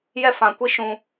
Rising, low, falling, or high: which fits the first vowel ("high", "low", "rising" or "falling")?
high